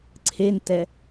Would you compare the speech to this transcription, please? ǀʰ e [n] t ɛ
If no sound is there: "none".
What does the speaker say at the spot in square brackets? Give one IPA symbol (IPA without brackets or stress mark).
n